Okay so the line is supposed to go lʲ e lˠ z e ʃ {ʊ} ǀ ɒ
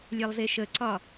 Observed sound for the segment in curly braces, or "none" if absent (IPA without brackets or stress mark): ə